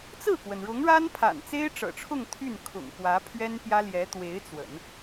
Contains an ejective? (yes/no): no